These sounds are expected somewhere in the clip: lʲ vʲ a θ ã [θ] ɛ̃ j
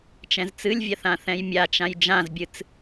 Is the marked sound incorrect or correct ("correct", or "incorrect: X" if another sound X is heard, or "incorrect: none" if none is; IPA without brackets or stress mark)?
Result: correct